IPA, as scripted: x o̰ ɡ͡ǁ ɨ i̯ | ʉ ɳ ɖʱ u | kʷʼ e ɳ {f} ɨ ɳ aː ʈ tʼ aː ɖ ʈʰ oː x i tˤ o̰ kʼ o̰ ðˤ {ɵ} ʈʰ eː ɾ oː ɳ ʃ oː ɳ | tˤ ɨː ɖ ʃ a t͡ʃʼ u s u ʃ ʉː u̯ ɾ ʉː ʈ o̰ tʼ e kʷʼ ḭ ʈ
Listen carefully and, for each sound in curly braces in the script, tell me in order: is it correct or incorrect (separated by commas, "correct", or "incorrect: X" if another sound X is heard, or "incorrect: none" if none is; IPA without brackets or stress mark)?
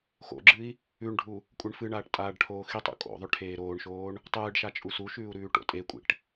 correct, correct